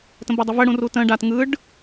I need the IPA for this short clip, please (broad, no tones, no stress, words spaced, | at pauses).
tə̃bɤdˤəvə ɽũrutə̃ ɖat ŋɯɖ